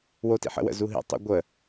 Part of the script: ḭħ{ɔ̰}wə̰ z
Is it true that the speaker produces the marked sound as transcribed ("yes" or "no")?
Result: no